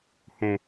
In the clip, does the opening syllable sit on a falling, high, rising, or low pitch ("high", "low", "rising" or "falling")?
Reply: low